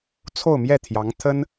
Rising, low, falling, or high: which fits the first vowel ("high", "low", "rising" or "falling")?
falling